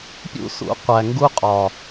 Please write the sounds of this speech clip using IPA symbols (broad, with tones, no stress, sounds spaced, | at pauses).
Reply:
pʲ ṵ˦ s ṵ˨˦ qʷ æ˨ ŋ ɡ u˦ qʼ ɒ˨